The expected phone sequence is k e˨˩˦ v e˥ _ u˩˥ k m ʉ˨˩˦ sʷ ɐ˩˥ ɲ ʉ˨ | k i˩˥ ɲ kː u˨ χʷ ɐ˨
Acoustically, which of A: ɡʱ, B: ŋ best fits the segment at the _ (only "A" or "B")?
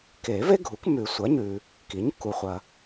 A